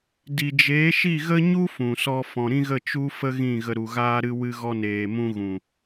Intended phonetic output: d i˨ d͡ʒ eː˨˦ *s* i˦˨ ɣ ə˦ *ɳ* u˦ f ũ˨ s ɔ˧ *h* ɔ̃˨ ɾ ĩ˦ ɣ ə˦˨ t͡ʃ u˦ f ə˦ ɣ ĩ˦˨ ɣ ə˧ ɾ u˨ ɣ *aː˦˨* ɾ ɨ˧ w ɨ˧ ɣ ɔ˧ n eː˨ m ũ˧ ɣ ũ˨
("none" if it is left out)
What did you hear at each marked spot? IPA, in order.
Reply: ʃ, ɲ, f, aː˦

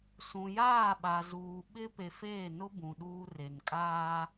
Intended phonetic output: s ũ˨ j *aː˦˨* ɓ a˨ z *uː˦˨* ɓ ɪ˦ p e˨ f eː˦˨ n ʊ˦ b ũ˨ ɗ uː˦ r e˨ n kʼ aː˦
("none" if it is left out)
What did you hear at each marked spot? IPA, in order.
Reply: aː˦˨, uː˨

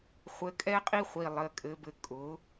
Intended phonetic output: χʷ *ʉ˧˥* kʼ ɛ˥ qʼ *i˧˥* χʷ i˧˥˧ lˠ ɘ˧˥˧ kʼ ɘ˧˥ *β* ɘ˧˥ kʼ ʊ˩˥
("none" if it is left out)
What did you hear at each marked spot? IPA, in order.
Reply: ɘ˧˥, i˥, b

